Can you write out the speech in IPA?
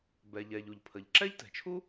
b ɛ˩ ʎ ɛ˩ ʎ u˩ ʎ pʰ ə˩ ʎ ǁ ɛ˥ ʎ t ɛ̤˩ t͡ʃʰ u˥

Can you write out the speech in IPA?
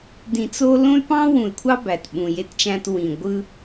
d ĩ˨ t͡s o˦ l õ˦ y̯ p ɑ̃˦ w ũ˨ y̯ kʷʰ ɑ˦ b æ˨ t ɓ ũ˨ j e˦ t t͡ʃ æ̃˦ t w ĩ˨ ɡʷ ɯ˦

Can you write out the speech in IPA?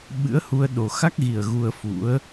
ɓ ɨ̰˧˥ ə̯ h u˧ ə̯ ɗ o˨˩ x a˦˥ k̚ ɣ i˨˩ ə̯ ɣ u˧ ə̯ f ṵ˧˥ ə̯

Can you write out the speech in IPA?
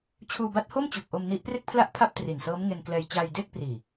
t͡ɕʰ uː˧ b a˦˥ t̚ h o˥˩ m t͡ɕ u˨˩ k̚ ʔ o˧ m n i˦˥ ʔ p r e˥˩ k̚ pʰ l a˥˩ ʔ pʰ a˥˩ p̚ t r i˨˩ n s ɤː˦˥ m ŋ e˧ n k l ɛː˧ j t͡ɕ aː˧ j d eː˥˩ k̚ p r iː˨˩

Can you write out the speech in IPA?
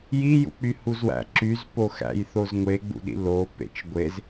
j i j ṵ k͡p y h u z w æ̰ ǁ y z p o x æ̰ j θ o z ŋʷ e ɡ͡b ṵ ɗ ḭ l o p ḛ t͡ʃ ɡʷ e z

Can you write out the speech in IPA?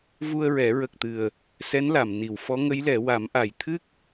v u˧ ə̯ ɹ ɛ˨˩˦ ɹ ə˨˩ k̚ t̪ ɨ˨˩ ə̯ | s ɛ˧˥ n l a˨˩˨ m n i˨˩˨ w f ɔ˧˥ ŋ ə˧˥ j l ɛ˨˩˦ w a˨˩˦ m ʔ a˨˩ j t̪ʰ ɨ˦˥ k̚

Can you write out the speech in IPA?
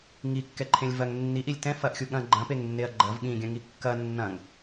ŋ i kː ɛ ǃʰ ẽ lʲ v ɐ ŋ nː i ʔ i lʲ t ɛ̃ f ɐ ʔ xʲ u ɠ ɐ̃ ɡ͡ǃ ɐ̃ p e ŋ nː e ɐ̯ ɡ͡ǃ ɐ v ɠ ĩ ɡʲ ɐ̃ ŋ i kː ɐ nː ɐ̃ ŋ

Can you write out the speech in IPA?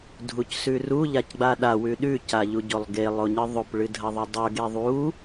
dʱ u c s ʉ r u ʎ a c ɡ͡b a ɗ a w ʉ ɗ ʉ c a ʎ u ɟ o lˠ ɡ e lˠ o ɲ ɨ ðˤ o p ɭ ɨ dʱ ɐ ðˤ ɵ dˤ ɵ ɡ e ðˤ u

